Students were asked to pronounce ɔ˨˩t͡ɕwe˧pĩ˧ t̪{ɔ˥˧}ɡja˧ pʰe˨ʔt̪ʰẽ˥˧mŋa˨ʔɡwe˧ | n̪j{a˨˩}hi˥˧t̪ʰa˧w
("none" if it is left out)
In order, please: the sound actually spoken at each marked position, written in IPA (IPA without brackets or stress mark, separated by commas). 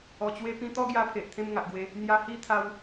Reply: ɔ˥˧, a˧